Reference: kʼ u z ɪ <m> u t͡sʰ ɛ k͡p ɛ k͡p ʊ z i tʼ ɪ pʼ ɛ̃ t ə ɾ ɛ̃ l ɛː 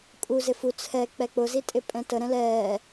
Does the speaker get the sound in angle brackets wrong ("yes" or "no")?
yes